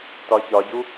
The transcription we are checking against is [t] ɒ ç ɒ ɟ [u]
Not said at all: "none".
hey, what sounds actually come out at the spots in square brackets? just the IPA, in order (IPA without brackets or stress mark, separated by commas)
t, u